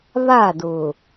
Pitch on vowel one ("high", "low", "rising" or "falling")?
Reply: falling